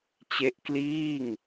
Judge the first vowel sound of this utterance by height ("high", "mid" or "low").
mid